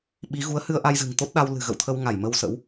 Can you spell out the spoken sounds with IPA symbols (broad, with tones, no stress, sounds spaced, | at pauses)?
ɓ i˨˦ ɣ u˨˦ ə̯ h ɨ˧ ə̯ ʔ a˧ j z ɨ̤˨˩ ŋ t̪ o˦˥ t̚ ɗ a˧ w l ɨ̤˨˩ ɣ ə̰˧˨ w t̪ʰ ə˧ w ŋ a˧˩ j m ə˧ w s ə̰˧˥ w